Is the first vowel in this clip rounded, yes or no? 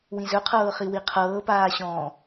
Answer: no